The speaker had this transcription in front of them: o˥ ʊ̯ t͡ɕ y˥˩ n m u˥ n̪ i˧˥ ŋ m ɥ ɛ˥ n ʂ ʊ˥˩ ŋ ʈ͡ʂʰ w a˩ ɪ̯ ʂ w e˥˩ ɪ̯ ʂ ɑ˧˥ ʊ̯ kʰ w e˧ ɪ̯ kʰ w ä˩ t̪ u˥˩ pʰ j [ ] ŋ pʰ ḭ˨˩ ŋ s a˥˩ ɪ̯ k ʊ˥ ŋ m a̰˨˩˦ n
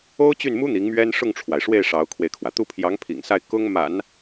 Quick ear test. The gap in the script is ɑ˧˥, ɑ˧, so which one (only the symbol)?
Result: ɑ˧˥